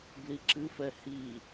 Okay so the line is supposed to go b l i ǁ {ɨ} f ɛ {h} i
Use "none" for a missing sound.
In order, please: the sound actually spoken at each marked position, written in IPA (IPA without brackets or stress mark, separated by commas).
ɨ, h